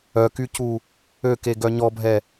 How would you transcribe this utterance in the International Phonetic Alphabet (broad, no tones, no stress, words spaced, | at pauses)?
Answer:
œkycu | økeɡœ ɲɔbʱɛ